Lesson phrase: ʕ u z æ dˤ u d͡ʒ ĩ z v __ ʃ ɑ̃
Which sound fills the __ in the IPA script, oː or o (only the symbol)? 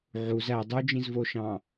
o